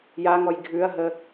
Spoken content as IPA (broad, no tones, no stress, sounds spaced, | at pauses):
j a ŋ ɔ j ɡʱ ʉ ɐ̯ ɦ ə